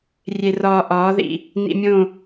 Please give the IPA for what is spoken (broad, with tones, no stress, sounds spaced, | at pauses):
rʲ e˧ r ɒː˧ ʔ ɒː˨˦ ð ḭ˨ | n ḭ˧ mʲ õ˦˨